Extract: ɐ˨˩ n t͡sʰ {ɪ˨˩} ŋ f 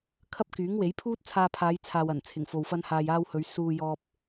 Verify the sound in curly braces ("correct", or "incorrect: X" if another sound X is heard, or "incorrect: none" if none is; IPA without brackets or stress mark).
correct